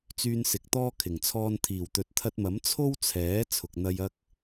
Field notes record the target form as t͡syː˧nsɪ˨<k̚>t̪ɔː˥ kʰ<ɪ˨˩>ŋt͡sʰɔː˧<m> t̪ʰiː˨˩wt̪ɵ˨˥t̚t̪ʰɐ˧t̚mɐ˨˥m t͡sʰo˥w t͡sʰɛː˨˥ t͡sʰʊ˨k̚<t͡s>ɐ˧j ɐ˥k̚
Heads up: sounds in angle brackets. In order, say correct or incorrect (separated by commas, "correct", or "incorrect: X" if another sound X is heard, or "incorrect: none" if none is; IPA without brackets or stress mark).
correct, correct, incorrect: n, incorrect: n̪